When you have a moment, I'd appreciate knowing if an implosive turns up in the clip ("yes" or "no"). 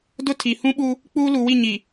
yes